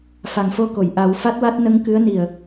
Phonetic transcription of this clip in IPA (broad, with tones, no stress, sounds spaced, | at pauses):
f a˨˩ ŋ f o˧ k o˨˩˨ j ʔ a˨˩˦ w f a˦˥ t̚ w a˦˥ t̚ n ə˧˥ ŋ k ɨ˧˥ ə̯ n i˨˩ ə̯